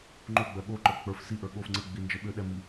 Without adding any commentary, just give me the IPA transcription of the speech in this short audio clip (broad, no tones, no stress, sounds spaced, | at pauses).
ŋ͡ǃ o ɡ͡b ɜ ɠ o ǃ ə˞ k͡p ə˞ f s i ʔ ə˞ ɠ o f ŋ͡ǀ ə ɡ͡b i n d͡ʒ ə ɓ ʏ ɗ ɛ m i